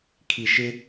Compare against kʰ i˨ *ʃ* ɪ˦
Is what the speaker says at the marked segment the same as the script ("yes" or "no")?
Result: yes